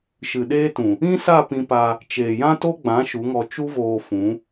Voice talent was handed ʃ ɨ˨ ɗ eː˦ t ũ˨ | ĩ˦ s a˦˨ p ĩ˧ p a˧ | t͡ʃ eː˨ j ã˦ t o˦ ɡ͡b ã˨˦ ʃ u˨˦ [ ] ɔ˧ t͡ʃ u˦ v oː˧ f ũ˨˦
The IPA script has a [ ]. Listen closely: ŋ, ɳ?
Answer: ŋ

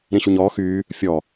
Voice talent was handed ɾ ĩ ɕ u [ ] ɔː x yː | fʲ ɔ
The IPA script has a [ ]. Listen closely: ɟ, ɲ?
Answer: ɲ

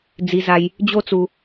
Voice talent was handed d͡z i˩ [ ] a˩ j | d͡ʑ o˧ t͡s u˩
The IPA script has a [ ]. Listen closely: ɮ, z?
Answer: z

